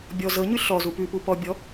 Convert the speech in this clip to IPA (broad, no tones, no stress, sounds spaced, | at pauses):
bʲ ɔ z ɤ ɲ ʉ ɬ ɔ z u p ʉ p u p ɔ bʲ ɔ